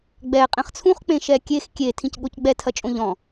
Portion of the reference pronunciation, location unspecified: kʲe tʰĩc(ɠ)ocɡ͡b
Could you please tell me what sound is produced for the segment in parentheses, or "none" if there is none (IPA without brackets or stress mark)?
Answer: ɠ